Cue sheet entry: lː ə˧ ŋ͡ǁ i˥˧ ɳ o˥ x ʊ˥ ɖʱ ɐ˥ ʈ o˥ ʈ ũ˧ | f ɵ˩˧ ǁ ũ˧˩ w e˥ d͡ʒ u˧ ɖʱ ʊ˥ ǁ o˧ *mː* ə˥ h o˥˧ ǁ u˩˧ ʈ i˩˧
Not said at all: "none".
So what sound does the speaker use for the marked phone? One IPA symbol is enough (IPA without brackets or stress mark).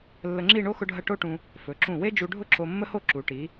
mː